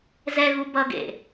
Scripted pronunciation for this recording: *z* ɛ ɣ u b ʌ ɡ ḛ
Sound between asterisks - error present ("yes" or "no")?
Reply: no